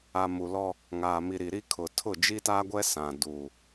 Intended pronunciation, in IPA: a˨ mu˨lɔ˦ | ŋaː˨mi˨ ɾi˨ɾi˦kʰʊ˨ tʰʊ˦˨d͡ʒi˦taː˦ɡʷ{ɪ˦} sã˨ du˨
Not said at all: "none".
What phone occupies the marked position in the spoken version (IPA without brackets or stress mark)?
ɛ˦